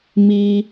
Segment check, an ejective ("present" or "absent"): absent